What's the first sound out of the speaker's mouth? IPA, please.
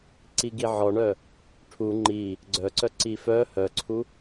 ǀ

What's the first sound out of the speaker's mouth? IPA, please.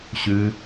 ɕ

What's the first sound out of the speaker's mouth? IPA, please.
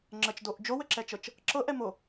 ŋ͡ǁ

